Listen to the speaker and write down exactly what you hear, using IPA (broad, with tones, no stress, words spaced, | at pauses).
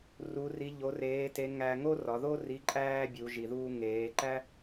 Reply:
ru˧˥ri˧˥ ʎo˧˥reː˧˥te˧˥ ŋæ˧ŋo˥rɒ˩˧ðo˥ ri˧˥ǃʼæː˥bʲu˩˧ ʒi˩ðuː˧ ŋeː˩˧ǃæ˥